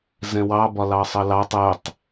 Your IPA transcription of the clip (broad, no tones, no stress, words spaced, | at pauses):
zɛ̃wɑ bɒlɑsˤʌlɑtˤ ɛtˤ